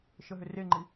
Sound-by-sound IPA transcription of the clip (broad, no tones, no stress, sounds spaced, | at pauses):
ʃ ə ɦ ʏ r e ŋ͡ǃ i